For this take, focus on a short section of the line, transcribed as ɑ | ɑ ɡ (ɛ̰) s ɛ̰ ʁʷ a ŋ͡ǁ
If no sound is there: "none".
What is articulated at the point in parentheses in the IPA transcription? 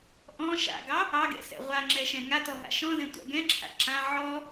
ɛ̰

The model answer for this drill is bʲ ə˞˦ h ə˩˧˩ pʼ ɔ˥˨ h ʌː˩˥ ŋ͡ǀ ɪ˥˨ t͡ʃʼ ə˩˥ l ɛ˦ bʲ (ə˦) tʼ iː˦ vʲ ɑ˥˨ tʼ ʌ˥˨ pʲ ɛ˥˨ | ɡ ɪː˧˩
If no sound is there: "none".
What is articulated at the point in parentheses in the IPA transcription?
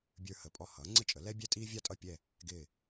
ɛ˦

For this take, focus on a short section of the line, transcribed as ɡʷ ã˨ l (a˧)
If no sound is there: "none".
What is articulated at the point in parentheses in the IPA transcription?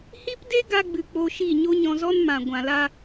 a˧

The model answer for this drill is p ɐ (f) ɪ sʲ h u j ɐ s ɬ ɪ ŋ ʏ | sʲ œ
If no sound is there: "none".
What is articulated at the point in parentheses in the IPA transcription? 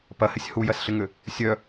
h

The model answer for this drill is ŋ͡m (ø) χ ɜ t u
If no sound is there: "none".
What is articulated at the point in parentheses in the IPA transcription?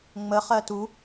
ə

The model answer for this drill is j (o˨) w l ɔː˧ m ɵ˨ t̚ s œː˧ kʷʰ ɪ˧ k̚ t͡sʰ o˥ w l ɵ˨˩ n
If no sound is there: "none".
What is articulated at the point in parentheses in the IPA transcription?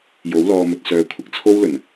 o˨˥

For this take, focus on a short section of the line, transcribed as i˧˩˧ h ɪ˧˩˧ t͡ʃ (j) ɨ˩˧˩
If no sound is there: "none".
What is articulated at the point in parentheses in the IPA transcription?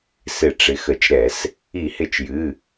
j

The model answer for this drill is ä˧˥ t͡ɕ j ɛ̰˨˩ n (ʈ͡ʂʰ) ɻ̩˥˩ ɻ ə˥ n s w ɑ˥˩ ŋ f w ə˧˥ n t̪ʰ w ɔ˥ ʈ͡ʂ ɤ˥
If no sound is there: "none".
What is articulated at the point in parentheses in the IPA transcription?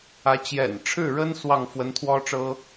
ʈ͡ʂʰ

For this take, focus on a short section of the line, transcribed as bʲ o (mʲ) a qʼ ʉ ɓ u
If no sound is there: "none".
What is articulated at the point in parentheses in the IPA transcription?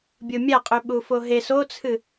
mʲ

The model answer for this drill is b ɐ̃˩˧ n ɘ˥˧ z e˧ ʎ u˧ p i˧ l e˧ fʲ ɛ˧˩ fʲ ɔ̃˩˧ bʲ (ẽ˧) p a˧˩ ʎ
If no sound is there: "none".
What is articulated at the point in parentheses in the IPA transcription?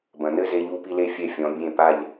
ẽ˧˩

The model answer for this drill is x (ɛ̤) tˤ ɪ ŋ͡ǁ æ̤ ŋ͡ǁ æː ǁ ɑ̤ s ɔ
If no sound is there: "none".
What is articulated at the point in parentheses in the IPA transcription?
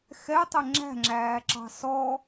ɛ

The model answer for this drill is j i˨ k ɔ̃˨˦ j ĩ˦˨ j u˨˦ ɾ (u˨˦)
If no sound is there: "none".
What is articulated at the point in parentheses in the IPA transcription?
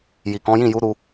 u˧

